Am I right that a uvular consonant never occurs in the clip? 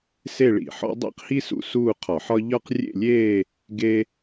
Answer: no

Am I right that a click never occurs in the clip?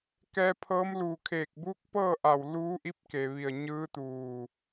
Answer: yes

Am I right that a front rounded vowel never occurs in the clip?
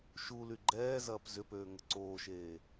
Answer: no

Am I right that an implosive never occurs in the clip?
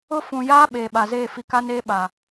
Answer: no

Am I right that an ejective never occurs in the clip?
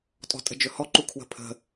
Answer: no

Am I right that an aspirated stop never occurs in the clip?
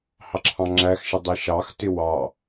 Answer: no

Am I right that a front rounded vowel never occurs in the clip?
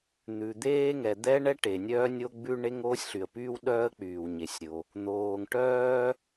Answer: no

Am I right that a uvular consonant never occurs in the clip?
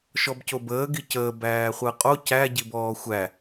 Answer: no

